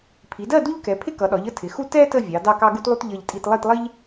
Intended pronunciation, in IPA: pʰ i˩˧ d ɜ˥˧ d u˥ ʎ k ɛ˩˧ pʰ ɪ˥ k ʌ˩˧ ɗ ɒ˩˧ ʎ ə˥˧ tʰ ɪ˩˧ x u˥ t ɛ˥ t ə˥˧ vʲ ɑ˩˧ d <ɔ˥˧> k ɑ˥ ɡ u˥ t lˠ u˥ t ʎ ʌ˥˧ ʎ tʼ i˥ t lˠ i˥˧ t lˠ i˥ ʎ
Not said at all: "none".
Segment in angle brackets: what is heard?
ɑ˥˧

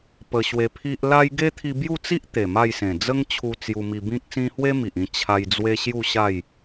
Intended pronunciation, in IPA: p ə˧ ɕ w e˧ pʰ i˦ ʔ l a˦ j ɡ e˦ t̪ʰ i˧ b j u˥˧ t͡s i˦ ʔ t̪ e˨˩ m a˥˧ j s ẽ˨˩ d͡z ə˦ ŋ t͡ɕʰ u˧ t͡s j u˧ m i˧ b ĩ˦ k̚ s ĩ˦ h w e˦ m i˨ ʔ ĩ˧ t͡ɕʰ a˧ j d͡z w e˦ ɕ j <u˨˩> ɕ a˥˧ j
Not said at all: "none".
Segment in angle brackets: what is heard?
u˥˧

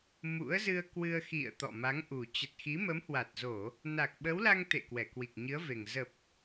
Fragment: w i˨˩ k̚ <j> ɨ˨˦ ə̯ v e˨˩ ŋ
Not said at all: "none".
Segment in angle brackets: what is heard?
ɲ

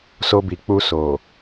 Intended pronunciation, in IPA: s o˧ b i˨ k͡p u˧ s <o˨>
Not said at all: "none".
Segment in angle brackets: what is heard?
o˨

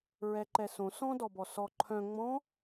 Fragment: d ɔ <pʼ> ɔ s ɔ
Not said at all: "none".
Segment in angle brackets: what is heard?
b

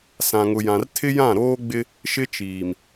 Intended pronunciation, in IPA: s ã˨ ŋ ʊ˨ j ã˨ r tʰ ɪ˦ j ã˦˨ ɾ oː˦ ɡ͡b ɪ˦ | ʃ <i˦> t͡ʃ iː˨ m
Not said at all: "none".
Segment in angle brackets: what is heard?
ɪ˦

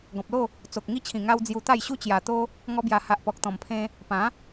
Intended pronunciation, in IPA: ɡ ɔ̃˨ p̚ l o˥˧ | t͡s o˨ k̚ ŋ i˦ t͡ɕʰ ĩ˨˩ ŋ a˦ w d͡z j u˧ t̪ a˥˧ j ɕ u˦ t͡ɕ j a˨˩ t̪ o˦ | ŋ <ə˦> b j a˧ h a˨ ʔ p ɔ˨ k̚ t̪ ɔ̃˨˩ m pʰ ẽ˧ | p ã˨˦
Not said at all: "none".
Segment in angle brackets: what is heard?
ɔ˦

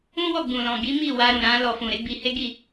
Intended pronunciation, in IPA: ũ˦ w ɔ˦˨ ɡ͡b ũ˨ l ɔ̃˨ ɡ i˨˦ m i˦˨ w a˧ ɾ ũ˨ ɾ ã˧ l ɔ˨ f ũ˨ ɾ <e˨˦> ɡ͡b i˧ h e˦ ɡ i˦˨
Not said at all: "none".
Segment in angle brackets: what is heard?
e˨˦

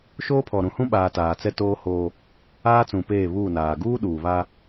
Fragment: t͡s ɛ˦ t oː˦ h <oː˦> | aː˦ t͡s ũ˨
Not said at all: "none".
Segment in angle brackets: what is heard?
oː˦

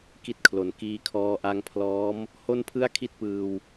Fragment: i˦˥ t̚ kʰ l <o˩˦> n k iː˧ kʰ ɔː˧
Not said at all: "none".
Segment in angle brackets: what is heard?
o˩˦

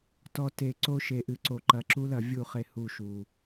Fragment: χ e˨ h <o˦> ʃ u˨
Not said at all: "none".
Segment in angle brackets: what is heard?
u˦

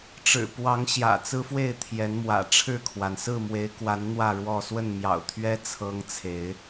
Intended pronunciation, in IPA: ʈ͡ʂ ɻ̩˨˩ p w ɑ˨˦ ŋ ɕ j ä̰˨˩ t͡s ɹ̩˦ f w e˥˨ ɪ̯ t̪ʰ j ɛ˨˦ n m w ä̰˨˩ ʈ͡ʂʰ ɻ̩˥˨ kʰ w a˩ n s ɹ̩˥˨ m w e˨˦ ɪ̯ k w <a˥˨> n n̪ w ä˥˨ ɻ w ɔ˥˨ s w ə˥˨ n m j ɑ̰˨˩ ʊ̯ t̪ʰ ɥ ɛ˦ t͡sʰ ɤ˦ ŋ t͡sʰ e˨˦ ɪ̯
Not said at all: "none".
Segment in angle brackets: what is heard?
a˨˦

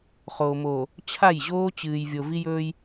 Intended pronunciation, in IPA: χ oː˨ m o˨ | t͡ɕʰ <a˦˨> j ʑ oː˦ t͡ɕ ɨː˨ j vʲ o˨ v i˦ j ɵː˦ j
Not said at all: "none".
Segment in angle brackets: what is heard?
a˦˨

